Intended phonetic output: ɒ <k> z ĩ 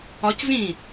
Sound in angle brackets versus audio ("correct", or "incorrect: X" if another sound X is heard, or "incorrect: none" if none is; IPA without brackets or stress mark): incorrect: c